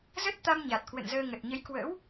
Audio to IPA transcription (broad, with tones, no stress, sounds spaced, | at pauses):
z ə˦˥ t̚ t̪ a˧ m ɲ a˨˩ t̚ k w ə̰˧˨ n z əː˧ ŋ ə˨˩ t̚ ɲ ə˨˦ j k w ə̰˧˥ w